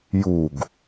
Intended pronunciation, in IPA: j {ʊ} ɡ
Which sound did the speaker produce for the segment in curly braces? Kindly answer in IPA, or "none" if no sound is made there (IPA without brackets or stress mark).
u